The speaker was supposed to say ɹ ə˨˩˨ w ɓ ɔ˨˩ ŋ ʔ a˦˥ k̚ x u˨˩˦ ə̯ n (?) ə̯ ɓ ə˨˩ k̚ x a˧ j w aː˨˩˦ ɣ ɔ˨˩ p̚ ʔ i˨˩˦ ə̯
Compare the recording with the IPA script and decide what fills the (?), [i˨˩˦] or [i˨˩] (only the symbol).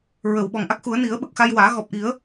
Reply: i˨˩˦